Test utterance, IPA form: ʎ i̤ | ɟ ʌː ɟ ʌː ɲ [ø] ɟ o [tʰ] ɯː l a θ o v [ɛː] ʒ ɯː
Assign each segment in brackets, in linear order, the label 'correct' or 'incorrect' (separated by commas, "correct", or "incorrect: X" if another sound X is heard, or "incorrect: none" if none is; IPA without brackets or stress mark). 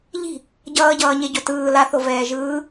incorrect: e, incorrect: t, correct